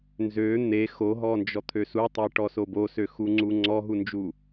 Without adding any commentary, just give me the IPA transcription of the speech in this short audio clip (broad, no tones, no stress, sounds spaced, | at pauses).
n z ø n̪ e x o ɦ ɔ n d͡ʒ ɔ t̪ʰ ø s u tˤ e ʈ ɔ s o b o s ø x u ŋ͡ǀ u ŋ͡ǀ ɔ ɦ u n d͡ʒ u